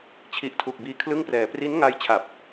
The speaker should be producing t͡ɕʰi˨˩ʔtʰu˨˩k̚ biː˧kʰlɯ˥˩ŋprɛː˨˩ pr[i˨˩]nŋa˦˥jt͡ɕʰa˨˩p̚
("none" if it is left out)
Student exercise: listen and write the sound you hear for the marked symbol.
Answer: i˦˥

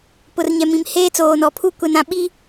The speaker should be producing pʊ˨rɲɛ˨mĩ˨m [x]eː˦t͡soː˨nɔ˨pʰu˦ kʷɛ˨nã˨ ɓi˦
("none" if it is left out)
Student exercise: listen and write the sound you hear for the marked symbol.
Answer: h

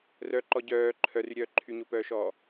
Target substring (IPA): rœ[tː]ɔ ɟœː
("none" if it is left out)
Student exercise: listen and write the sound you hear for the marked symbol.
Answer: ǃ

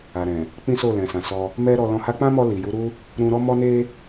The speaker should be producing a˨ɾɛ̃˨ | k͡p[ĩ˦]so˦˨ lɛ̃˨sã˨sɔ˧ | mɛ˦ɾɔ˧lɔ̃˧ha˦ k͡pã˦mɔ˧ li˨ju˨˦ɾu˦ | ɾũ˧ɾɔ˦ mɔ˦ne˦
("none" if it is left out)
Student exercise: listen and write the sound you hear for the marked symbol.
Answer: ĩ˦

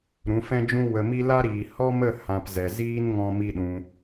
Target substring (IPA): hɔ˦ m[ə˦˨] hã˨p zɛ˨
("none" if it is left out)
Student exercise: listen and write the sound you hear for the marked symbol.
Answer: ə˦˨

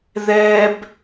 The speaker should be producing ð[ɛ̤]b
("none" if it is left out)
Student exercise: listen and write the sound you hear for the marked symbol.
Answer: ɛ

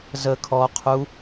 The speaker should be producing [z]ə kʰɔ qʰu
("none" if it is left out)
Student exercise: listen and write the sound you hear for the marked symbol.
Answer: z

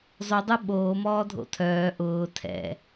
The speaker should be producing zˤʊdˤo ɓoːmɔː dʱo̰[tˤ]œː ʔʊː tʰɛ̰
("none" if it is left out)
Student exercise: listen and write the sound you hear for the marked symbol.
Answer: tʰ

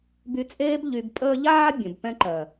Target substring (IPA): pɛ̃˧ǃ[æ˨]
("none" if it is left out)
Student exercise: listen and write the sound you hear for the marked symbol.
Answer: ɜ˨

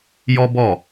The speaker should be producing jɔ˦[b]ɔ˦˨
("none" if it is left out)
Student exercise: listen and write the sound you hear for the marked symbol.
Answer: b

